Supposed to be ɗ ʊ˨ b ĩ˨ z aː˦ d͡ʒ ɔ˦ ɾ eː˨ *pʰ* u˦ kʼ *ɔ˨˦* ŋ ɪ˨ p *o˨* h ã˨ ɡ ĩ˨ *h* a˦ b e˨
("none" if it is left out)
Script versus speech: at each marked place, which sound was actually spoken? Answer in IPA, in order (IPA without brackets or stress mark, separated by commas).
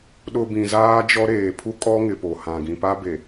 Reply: pʰ, ɔ˦, o˨, p